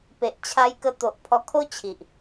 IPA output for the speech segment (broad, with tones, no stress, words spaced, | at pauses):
pe˨ʔt͡ɕʰa˧jkə˧t̪o˨ʔ pʰɔ˧kʰo˦t͡ɕʰi˨ʔ